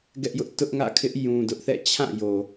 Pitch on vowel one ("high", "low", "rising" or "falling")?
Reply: high